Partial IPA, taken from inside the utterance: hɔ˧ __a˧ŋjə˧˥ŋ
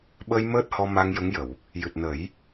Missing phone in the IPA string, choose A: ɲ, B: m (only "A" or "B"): B